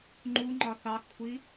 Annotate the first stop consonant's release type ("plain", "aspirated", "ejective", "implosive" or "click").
click